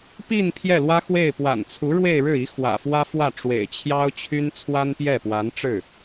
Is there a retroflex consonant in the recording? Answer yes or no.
yes